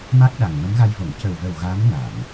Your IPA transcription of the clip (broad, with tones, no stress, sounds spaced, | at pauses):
m a˦˥ k̚ ɗ a˨˩ ŋ m ə˧˥ m ɣ a˧ j v o˨˩˨ ŋ c ə˨˩ w v ə˨˩ w ɣ a˧˥ m n a˨˩˨ m